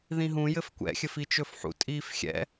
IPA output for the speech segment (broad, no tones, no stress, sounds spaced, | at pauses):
ð ĩ ɦ ũ j ɘ f kʷ ɛ̰ xʲ ɘ f i t͡ʃ ɵ f ħ ṵ tʼ iː f xʲ ɛ̰